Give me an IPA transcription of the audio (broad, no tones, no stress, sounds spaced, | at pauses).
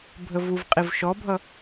bʱ ə v u v qʼ i v ʃ ɔ bʱ ʌ